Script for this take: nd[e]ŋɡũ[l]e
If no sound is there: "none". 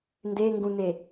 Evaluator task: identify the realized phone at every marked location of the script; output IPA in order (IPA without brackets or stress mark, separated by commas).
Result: e, n